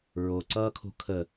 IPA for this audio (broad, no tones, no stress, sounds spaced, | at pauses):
ɹ o ǀ ʌː kʰ o̤ kʰ ə